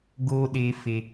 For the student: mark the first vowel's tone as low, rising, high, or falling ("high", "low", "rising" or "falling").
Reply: high